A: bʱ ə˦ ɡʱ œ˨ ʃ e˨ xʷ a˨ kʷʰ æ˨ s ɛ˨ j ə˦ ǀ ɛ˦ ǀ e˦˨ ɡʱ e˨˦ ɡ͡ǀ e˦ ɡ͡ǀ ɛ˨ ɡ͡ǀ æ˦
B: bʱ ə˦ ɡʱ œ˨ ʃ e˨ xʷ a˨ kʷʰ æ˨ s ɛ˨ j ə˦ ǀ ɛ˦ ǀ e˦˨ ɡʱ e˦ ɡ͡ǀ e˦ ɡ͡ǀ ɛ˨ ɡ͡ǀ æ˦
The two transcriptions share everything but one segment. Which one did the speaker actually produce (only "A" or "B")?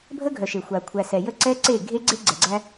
B